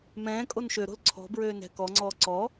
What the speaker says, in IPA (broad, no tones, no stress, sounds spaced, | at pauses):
m ɛ̃ː kʼ o n ʃ ø ɾ o̤ l ǀʰ ɔ̤ b ɹ øː n ɛ̤ k ɔ ŋ͡ǀ ɔː ǀ ɔ